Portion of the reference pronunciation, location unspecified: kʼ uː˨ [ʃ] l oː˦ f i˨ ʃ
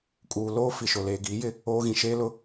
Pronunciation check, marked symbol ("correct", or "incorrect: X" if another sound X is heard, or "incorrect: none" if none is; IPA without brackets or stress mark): incorrect: none